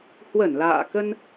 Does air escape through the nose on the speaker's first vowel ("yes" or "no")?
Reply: no